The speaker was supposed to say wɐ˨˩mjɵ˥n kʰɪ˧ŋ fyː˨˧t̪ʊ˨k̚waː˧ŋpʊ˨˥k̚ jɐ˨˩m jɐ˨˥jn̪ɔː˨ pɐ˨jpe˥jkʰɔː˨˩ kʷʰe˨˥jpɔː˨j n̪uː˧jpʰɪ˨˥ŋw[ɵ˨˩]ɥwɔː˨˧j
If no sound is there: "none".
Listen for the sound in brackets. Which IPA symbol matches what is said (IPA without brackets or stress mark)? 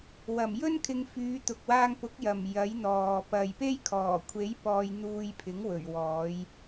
ɵ˨˩